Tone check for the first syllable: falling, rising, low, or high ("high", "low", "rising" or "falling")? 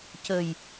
low